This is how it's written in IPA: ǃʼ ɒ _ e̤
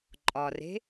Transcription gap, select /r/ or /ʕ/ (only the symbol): r